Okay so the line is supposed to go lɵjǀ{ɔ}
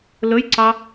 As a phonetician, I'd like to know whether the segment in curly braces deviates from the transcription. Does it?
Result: yes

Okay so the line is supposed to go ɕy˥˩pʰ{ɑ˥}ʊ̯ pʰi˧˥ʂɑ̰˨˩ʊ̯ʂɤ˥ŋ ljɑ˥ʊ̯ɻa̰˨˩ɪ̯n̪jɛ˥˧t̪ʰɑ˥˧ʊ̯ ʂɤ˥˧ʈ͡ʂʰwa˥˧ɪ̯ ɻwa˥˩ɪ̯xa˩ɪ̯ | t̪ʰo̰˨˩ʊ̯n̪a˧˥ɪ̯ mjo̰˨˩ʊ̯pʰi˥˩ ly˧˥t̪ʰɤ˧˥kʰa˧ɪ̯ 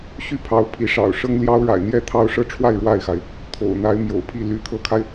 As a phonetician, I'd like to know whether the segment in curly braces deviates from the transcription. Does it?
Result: yes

